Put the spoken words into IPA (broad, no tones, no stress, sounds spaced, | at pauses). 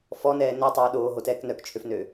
f ɔ n ɛː n o tˤ øː ɗ oː ɦ o t ɛː k n œ k t͡ʃʰ ø f n øː